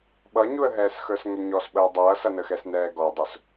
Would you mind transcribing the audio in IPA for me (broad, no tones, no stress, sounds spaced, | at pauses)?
ɓ ʌ ɲ u ə̯ ɦ ɛː s x ə˞ s ŋ ɛ ɲ ɔ s ɓ əː dˤ ʌː s ʌ n ə x ɛ s n ɛː ɡ ɔ dˤ ʊ s